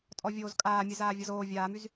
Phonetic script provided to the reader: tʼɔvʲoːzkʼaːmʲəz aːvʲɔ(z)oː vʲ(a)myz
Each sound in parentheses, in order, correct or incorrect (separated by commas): correct, incorrect